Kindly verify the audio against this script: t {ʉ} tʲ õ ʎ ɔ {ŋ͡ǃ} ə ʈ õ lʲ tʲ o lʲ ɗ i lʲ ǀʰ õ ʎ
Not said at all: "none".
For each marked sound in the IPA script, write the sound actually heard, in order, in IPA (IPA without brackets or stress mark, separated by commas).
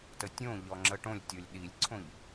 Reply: ə, ŋ͡ǁ